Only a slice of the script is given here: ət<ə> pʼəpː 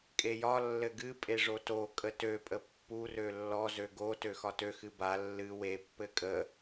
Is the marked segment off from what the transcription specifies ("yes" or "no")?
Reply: yes